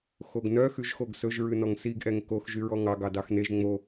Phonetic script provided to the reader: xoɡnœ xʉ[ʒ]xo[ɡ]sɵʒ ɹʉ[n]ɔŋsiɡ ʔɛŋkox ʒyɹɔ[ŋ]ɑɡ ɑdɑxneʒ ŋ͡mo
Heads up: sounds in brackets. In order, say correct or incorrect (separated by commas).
correct, correct, correct, correct